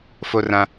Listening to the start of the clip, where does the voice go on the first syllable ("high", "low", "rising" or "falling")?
high